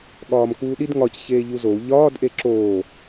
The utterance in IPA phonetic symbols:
ɠɒːmkuːɗid ŋɒc çeːʎuzou̯ ʎɒːd ʔeǁoː

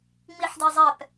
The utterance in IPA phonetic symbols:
ŋ͡miħdizˤɛp

